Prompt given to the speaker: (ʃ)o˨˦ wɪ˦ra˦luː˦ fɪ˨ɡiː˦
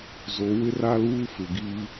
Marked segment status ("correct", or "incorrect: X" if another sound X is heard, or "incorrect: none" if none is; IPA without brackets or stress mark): incorrect: z